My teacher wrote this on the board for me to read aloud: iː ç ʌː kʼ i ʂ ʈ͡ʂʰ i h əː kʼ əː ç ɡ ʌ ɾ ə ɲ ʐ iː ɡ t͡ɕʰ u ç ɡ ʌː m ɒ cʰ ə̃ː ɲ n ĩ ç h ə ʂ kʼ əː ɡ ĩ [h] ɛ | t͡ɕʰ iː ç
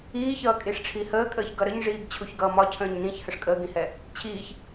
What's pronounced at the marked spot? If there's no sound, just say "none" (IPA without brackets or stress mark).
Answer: h